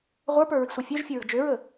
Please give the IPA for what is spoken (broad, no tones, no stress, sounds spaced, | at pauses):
ʁʷ ə˞ p ə˞ ɹ i̤ sʷ ʌ fʲ œ ʒ fʲ ə ɹ ə̤ d͡ʒ ø ɹ ə